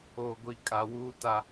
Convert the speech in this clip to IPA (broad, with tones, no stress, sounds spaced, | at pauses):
o˨ ɡʷ i˨ kʼ a˨ w uː˦ t a˦